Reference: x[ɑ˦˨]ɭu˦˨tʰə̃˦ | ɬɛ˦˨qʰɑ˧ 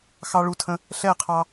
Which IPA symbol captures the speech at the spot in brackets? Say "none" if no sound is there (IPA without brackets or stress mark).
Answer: ɑ˦